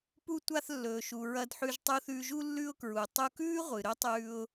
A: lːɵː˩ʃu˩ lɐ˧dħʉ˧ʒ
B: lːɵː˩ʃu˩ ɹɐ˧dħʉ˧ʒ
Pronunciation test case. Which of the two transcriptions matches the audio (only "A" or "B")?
B